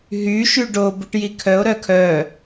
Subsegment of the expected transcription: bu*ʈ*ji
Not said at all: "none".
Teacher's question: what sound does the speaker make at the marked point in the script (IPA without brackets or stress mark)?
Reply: ʈ